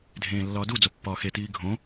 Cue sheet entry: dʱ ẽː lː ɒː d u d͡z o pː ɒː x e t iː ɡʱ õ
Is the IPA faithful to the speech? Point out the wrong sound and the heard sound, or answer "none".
none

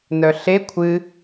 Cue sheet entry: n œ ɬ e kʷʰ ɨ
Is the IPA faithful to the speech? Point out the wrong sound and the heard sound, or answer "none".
none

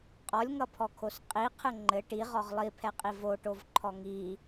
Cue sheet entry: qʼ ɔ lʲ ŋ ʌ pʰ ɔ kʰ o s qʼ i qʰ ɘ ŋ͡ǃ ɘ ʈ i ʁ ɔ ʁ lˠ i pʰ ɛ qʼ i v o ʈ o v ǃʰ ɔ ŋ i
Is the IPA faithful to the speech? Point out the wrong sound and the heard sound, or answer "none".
none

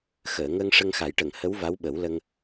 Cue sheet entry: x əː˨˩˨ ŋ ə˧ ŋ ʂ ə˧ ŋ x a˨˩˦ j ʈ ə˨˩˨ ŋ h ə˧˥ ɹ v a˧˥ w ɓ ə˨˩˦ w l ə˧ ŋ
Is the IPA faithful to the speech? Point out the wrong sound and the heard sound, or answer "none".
ɹ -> w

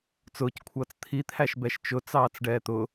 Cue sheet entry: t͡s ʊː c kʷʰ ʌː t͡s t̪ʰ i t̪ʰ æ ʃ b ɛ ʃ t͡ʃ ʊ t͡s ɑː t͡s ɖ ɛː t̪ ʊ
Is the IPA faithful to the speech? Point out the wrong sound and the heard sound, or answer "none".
none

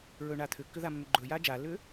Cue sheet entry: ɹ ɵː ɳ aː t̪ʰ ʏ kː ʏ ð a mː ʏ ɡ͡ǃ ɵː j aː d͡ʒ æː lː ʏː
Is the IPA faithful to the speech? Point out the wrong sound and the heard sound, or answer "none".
æː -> aː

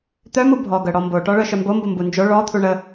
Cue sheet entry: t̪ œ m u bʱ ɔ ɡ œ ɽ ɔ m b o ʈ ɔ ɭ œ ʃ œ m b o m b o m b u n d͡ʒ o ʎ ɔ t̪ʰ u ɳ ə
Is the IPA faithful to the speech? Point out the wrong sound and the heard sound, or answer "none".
ʎ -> ɭ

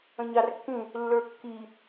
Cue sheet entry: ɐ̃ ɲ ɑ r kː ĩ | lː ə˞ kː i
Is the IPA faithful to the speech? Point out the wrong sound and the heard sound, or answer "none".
ɐ̃ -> ə̃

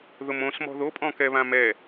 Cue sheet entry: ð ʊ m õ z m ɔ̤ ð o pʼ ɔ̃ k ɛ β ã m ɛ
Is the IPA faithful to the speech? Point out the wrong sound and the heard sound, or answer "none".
z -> s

